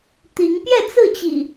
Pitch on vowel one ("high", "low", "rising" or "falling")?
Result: rising